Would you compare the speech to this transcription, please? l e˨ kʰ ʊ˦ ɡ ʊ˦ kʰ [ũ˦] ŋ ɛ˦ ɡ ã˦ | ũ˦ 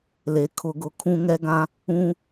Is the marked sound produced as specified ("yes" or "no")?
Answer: yes